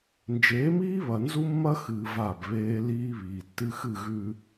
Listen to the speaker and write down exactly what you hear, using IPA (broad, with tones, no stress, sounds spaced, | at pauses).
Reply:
n d͡ʒ eː˨˦ m iː˦ β ɐ˨ n z u˦ mː ɐ˦ x ɨː˨ v a˦˨ b β eː˦ l iː˦ β iː˨ tː ɨ˦ x ɨ˦˨ ɣ ʉ˨